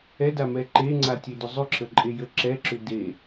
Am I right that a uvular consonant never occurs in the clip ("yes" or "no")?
yes